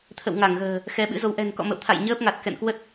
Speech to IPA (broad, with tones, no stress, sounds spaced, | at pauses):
t̪ʰ ə̰˧˨ w ŋ a˧˩ ŋ ɣ ə̤ː˨˩ | x ɛ˨˦ ɓ ɨ̰˧˥ z o˨˦ w ʔ ɛ̤˨˩ n k ɔ̰˧˨ m ə̰˧˨ w t̪ʰ a̰˧˨ j ɲ əː˦˥ p̚ ŋ a˨˩ t̚ k ɛ̰˧˨ n k w ə˦˥ t̚